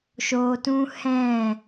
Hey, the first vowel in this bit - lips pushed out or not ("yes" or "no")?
yes